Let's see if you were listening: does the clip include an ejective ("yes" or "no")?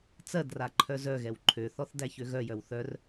no